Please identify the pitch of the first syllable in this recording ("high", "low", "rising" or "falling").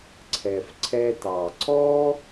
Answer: low